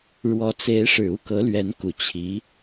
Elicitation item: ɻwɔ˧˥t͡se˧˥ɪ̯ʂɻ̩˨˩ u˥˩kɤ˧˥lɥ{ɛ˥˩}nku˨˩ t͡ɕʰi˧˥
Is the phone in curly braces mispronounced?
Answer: yes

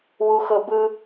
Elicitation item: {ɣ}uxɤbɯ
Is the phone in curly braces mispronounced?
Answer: yes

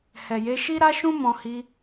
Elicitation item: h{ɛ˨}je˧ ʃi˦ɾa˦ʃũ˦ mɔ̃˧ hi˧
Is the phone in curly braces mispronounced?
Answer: no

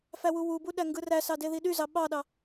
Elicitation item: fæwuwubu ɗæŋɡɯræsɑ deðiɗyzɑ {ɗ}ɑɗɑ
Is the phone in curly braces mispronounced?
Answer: yes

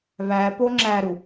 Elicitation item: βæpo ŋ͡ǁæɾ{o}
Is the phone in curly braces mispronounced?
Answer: yes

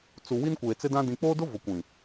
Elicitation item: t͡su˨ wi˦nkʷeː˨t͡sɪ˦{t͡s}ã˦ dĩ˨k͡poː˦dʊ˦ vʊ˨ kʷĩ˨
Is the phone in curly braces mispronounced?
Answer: yes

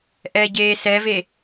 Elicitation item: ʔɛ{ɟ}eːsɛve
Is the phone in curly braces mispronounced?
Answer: no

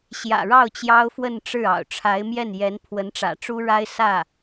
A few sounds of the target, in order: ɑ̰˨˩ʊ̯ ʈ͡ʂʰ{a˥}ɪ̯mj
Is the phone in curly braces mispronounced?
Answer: yes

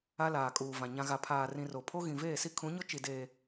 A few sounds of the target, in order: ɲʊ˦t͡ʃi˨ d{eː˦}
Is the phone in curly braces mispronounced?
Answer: yes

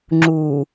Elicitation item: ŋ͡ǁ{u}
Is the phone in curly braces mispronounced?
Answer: no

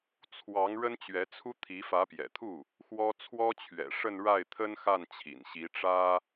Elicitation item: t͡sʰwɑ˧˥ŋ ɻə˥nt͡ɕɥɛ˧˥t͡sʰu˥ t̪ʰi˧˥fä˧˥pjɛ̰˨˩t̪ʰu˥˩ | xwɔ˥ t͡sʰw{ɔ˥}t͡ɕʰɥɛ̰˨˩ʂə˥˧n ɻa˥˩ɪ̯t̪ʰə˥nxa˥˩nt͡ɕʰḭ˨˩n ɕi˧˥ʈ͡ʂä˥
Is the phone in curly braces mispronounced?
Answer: no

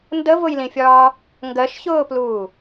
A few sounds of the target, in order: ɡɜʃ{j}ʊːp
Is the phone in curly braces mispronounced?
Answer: yes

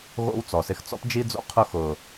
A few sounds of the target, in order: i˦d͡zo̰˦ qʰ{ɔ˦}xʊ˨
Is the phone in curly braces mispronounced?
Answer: yes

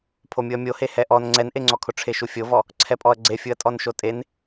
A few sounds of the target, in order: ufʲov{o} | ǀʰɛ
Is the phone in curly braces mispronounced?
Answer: yes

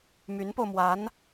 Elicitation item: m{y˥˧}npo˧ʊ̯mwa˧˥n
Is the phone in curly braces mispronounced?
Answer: yes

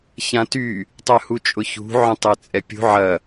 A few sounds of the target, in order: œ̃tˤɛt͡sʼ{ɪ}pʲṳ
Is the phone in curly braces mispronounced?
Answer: yes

